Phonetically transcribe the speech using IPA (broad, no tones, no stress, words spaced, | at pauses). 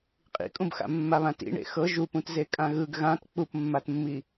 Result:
qʼḭkʼũbxa̰ mːaβãtḭɳḛ xɤ ʒupũtze kʼãɣɯɡ ɣãt k͡pupmːatmːi